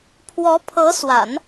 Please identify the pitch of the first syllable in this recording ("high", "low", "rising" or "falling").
rising